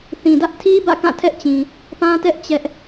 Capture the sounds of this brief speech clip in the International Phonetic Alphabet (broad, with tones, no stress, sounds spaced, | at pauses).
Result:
θ ĩ˨ d ä˦ ʔ tʰ i˦ b ä̰˦˨ k ã˦˨ tʰ ɛ˦ ʔ t͡ɕ ĩ˨ | p ã˦ t ɛ˦ ʔ t͡ɕ ɛ˦ ʔ